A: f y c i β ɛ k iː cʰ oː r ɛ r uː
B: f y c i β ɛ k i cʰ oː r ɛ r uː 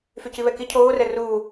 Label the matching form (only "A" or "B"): B